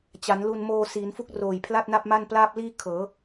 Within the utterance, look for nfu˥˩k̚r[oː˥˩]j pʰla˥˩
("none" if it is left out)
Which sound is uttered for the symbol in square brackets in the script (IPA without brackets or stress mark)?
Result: oː˨˩